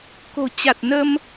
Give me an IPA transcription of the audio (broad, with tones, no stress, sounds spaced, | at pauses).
k o̤˨˩ t͡ɕ a˨˩ t̚ n ə˧ m